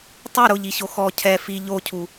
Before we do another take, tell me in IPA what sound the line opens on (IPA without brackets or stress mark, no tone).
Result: tˤ